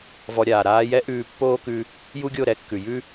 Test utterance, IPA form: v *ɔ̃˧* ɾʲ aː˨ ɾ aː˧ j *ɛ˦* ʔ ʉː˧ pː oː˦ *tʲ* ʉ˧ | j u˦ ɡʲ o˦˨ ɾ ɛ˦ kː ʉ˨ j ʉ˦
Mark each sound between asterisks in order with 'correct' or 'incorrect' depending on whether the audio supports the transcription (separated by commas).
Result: incorrect, correct, incorrect